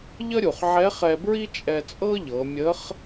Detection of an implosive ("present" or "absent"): absent